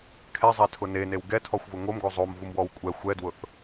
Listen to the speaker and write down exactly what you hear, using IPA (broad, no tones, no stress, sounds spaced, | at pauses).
kʰ ɛ zˤ ɛ tʰ ʊ n e n e w ɡ ɛ tʰ ɔ xʷ v ʊ ŋ o m ɡ o zˤ o m v u m w ɔ w kʷʼ ɛ xʷ ɛ d w ʊ θ